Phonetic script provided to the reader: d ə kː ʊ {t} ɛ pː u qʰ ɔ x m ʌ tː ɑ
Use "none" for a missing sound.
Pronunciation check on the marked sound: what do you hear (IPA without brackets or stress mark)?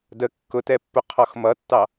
t